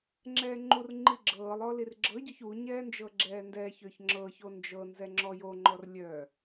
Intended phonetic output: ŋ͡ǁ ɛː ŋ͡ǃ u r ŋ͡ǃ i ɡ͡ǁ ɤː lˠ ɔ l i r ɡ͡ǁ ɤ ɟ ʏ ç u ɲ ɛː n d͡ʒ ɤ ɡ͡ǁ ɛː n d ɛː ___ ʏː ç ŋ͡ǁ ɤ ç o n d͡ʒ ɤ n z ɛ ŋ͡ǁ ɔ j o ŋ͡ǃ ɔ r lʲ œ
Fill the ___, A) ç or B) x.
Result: A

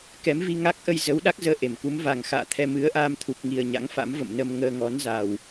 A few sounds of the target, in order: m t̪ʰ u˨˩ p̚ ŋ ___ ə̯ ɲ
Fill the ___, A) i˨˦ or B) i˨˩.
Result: B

